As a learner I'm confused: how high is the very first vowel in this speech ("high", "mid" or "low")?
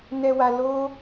mid